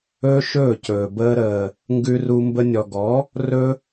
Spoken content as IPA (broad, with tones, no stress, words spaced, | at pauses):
ɵː˦ʃɵː˦˨cɵː˨ bəː˧ɾəː˨ | ŋɡʉ˧ru˧ mbə˧nʲɔ˨ɡɔ˨˦ | rɵ˦